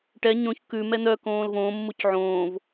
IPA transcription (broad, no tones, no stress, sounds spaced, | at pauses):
ʈ ɛ ɲ õ ç k ʉ m ɛ n̪ œ k õː l v õː mː u c ʕ õː v